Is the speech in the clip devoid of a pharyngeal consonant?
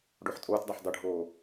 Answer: no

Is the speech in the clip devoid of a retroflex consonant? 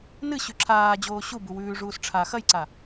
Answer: no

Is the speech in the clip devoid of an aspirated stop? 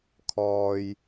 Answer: no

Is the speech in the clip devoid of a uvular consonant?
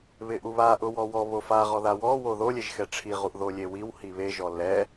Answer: no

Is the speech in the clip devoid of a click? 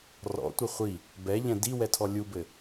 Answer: yes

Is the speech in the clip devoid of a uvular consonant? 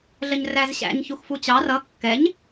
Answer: yes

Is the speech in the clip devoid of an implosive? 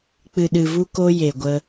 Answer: no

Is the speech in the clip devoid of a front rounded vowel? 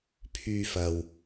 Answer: no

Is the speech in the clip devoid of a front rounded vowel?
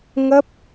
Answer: yes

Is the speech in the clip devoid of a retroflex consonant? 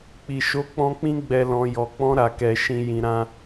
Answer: yes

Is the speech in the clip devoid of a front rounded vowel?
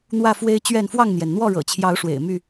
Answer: no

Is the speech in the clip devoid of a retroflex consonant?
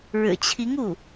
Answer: no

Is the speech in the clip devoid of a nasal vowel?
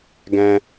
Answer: no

